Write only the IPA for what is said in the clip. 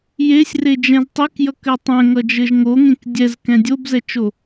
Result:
jesʲred͡ʒɛ̃z tˤekjʌkɘ tˤɛ̃ŋʌd͡ʒɘʒ ŋoŋẽk dʲɛzkɛ̃ dʲobzɛt͡ʃo

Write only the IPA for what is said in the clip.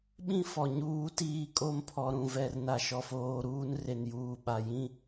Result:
ɓĩ˦ fɔ˨ɲuː˦ tiː˦ kʼo˦mpʰɔ˨ɾũ˨vɛ˨r na˨ʃɔ˨foː˨ ɾuː˦nre˨njuː˨ ɓa˨ jĩ˦

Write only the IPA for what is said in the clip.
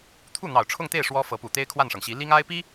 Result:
t̪ʰu˥˩n̪ɑ˨˩ʊ̯ʈ͡ʂʰʊ˥˧ŋt̪e˥˩ɪ̯ ʂwɔ˥fɤ˧˥pu˨˩ t̪e˥ɪ̯kʰwa˥˩nʂɤ˩ŋɕi˧˥ li˥ŋa˥ɪ̯pi˥

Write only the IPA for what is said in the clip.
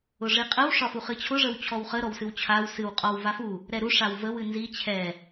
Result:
ʊʐiqʼəw ʂɒfuχɨt͡ɕʰʊ ʐəwt͡ɕʰɔwχə ɾɔwsɨwt͡ɕʰaw sɨw qʼɒw vafu | ɾɛɾu ʂawvəw ɨnzi t͡ɕʰɛ

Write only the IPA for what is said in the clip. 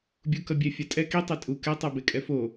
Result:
bʲukʌbʲɛ fʲatʼɛ ki tˤetʼu kɛ tˤabekʼɛfo

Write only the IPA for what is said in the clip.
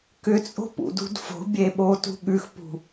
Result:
kʏt͡sʼo̤pṵdṳd fo̤bʲeɓotṳ ɠʉxpṳ

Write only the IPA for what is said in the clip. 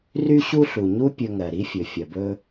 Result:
ry˥ɕu˥ɬu˩ɲu˥ pʲɵ˧ŋɜ˩ɾi˥fʲɵ˩ fʲɐ˩bɵ˧

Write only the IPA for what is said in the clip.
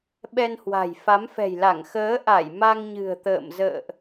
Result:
ɓɛ˧nhwa̤˨˩j fa˨˦mfɛ̤˨˩jla˧˩ŋ xəː˨˦ʔa˧˩j ma˧ŋɲɨ̤˨˩ə̯t̪ə̰ː˧˨mzə̰ː˧˨ʔ

